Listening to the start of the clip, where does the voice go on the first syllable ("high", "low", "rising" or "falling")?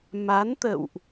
rising